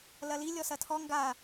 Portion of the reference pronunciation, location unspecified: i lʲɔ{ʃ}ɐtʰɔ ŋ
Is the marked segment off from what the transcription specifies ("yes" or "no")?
yes